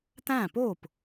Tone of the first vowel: falling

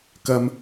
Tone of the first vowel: low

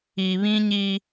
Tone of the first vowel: low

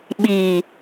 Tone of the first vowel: low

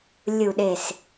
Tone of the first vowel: low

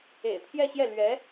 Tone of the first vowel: low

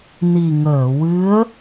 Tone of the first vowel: low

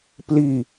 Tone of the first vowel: falling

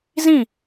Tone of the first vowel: falling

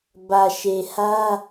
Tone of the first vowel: low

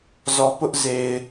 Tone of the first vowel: low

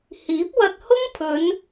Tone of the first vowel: rising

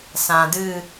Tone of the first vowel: low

